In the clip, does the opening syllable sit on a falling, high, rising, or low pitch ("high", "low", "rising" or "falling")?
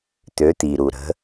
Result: rising